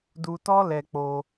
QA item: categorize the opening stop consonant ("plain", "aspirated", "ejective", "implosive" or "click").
plain